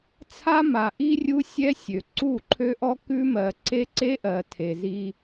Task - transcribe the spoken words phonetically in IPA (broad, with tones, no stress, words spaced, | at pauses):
t͡sʰa˦ma˨ʔi˦rʲu˦ sʲɛ˦ sʲø˨ ǀu˦˨ǃʰø˦ʔɔ˦ kʉ˦mɜ˨ ǀe˦ǀe˦ʔɜ˨ tʰe˨zi˦